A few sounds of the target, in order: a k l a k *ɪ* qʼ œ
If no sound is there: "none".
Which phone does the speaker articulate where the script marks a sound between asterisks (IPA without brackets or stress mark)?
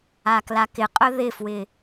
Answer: ɪ